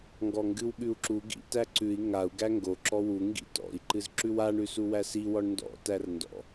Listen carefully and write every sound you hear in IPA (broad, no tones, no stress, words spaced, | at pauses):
ŋɡɔŋɡɨwɠʉu̯ǁu ɡḭ tæǀʉi̯ ŋau̯ ɡæŋɡo ǁɔwu ŋɡḭtɔ̰i̯ ǃɨzǁʉwaɳ ʉsuwæsi wɔɳndɔ̰ tærndɔ̰